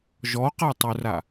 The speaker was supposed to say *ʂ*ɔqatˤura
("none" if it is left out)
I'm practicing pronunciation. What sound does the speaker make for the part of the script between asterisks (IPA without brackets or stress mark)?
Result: ʒ